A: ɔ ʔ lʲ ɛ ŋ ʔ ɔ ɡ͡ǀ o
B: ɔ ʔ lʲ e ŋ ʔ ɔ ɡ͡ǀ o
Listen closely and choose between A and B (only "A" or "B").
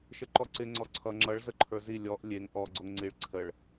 B